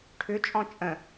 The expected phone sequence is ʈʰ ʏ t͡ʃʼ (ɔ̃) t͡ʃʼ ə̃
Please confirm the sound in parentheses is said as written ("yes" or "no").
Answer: yes